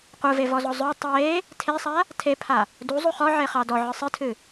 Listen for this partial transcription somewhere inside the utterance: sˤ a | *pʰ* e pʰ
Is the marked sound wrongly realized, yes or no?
yes